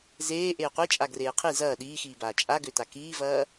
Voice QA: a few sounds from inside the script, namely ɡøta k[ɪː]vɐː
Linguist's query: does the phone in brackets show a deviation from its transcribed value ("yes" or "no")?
yes